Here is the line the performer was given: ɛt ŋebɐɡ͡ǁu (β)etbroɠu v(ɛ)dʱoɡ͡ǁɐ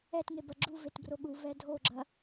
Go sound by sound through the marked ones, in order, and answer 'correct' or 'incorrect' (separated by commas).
incorrect, correct